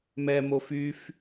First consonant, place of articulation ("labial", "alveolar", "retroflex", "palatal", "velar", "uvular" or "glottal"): labial